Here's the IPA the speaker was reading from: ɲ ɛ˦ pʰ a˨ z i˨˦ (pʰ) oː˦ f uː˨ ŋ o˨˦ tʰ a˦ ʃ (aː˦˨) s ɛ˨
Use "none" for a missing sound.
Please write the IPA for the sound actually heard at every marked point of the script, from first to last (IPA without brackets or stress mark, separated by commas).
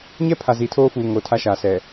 tʰ, aː˨